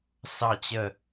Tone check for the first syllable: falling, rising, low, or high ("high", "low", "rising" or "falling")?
falling